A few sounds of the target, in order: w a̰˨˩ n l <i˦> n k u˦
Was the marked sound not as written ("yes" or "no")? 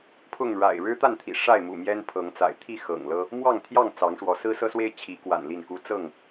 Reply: yes